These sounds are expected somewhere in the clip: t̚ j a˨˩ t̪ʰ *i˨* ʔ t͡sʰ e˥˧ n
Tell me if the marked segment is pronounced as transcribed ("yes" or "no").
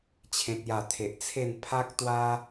no